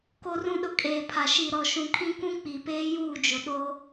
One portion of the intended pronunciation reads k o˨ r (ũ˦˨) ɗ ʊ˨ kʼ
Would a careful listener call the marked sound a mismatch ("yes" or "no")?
yes